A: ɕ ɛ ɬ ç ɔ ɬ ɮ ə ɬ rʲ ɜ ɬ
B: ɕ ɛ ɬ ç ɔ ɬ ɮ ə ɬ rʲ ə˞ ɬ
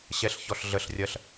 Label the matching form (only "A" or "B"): A